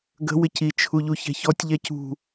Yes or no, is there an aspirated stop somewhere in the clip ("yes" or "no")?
yes